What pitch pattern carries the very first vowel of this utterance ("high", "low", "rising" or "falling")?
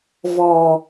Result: low